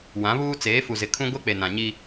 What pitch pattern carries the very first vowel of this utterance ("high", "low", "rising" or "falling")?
rising